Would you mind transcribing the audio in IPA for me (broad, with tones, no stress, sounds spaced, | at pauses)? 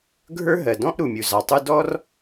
ɡʱ ə˞˥ ɦ ɜ˩ d ɔ̃˥ ʔ ɾ u˩ mʲ u˩ z ɑ˩ tˤ u˥ d ɔ˥ r